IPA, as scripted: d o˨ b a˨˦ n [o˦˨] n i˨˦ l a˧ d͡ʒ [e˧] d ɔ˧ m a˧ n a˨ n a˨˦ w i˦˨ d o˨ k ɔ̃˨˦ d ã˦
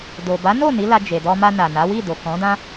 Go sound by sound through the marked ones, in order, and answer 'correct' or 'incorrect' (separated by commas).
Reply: correct, incorrect